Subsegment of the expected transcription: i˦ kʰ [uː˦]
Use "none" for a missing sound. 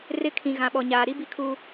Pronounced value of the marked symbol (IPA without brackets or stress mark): uː˦